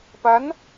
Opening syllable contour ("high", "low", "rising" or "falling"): rising